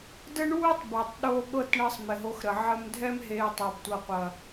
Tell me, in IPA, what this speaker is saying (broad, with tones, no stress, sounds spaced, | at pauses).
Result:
d ə˦ ɳ uː˦ tˤ b ɛ˨ tˤ ɗ oː˧ ɠ ɤ˦˨ t ɳ əː˧ sˤ m ɪ˨ ɦ o˧ x ɾ ə˨ ʕ ə˧ m dʱ ɛ˧ m ɦ eː˨ tˤ o˨ b tʷ ɤ˨ qʷ ɐ˨